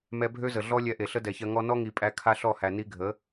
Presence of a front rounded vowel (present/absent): present